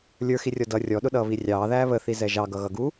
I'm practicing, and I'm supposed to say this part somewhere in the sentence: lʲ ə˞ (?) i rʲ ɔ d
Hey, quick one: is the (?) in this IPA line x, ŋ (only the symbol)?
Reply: x